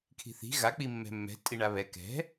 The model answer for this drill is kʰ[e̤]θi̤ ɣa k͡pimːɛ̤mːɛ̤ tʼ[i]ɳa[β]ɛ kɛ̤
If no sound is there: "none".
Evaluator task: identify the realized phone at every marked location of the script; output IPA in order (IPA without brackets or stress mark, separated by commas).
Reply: i̤, i, β